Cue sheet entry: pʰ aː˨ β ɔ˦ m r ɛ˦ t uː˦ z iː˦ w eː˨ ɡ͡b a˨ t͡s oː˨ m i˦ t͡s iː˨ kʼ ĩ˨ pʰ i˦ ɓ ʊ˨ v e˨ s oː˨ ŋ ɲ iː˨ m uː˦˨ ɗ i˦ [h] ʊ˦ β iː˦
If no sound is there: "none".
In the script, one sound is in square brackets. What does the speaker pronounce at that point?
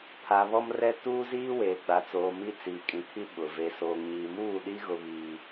ɣ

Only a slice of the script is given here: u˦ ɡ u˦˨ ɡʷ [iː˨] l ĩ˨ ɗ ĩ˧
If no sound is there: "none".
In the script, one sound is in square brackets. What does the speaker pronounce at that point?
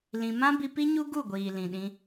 iː˨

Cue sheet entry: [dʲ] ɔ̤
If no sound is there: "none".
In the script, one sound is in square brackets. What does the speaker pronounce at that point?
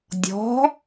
dʲ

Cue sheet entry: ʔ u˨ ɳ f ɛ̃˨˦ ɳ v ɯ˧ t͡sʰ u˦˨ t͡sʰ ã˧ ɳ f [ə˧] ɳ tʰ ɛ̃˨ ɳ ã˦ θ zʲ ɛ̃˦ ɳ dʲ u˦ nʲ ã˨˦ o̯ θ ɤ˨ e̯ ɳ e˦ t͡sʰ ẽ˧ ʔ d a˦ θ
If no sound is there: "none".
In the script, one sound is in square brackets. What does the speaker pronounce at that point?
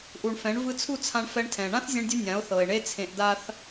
ɛ˧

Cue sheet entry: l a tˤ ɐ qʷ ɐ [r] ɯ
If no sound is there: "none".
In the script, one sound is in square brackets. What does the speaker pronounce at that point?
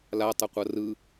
r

